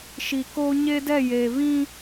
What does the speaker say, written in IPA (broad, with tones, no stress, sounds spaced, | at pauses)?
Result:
ʃ i˨ k oː˦ ɲ e˦ d ɛ˦˨ j eː˨ β ĩ˦